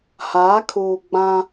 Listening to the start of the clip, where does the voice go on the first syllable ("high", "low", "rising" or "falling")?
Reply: rising